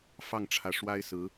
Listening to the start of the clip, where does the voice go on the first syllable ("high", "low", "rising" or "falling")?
falling